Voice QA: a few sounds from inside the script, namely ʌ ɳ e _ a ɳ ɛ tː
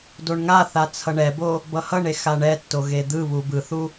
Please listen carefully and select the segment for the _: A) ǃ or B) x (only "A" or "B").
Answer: B